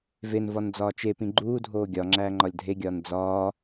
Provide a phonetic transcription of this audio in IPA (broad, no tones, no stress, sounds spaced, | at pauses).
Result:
v e n v ɒ n d͡z ɒː t͡ʃ e p ĩ ɡ͡ǃ uː dʱ oː ɡʲ ɒ ŋ͡ǁ æː ŋ͡ǃ ɒ lʲ dʱ e ɡʲ ɒː n d͡z ɒː